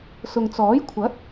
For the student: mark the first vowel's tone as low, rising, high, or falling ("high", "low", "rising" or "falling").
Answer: low